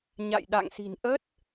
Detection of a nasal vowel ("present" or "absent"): absent